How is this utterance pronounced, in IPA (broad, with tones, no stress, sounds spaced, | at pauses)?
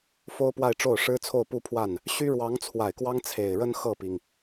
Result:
f o˥ ʊ̯ p w a˥˧ ɪ̯ ʈ͡ʂ o˥˩ ʊ̯ ʂ ɻ̩˥ t͡sʰ o˥˧ ʊ̯ p u˥˧ pʰ w a˥˩ n | ɕ y˥ ɻ w ɑ˧˥ ŋ t͡sʰ w a˨˩ ɪ̯ k w ɑ˥ ŋ t͡sʰ e˨˩ ɪ̯ ɻ ə˥ n x ɤ˥˩ p i˩ ŋ